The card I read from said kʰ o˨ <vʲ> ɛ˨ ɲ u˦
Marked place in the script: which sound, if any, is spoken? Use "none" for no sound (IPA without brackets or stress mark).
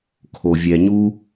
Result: vʲ